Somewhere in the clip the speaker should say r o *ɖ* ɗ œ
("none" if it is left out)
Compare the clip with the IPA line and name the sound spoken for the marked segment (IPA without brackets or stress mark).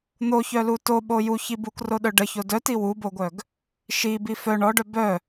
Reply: none